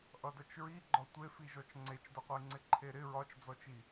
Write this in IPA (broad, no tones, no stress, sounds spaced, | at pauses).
ʔ ʌ d ʌ t͡ʃ ɹ i ɡ͡ǃ ɒ tʷ e f i ʒ ɔ t͡ʃ ŋ͡ǀ e t͡ʃ d ʌ qʷ ɘ i̯ ŋ͡ǀ ɪ ǃʰ e ɾ ɪ ɹ ɒ t͡ʃ d͡z ɔ t͡ʃ i